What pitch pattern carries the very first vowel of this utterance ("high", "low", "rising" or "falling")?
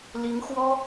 rising